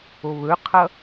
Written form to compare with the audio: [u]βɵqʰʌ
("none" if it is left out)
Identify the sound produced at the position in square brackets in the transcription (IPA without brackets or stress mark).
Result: o